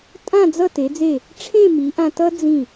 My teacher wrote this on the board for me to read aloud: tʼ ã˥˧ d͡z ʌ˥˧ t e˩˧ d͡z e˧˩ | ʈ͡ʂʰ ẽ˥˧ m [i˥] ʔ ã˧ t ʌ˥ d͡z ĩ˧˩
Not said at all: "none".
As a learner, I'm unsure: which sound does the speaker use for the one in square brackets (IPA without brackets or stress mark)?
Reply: i˩˧